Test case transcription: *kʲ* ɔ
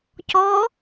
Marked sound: incorrect: c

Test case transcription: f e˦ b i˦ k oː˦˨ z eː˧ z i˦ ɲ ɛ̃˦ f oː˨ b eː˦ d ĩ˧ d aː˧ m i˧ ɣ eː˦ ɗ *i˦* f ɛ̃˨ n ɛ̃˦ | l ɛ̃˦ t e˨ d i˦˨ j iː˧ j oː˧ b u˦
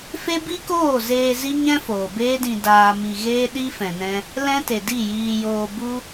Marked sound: correct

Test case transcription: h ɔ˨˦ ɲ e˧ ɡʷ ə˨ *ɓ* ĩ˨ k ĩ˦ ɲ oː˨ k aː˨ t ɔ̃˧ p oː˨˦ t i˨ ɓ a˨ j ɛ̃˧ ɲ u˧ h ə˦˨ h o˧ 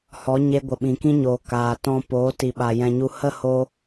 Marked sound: correct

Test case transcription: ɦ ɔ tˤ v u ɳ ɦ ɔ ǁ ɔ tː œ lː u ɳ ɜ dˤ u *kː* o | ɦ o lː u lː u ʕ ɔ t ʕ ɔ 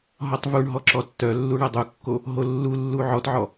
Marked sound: correct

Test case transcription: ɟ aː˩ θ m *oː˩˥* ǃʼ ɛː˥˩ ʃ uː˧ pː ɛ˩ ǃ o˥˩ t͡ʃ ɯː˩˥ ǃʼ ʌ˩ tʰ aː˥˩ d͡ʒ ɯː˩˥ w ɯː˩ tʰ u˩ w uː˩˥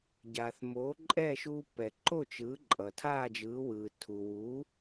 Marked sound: correct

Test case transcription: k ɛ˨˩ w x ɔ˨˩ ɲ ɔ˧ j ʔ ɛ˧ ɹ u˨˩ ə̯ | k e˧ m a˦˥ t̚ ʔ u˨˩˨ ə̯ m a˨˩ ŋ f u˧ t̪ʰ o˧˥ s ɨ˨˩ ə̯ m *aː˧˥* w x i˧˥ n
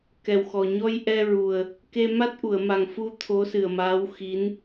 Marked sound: correct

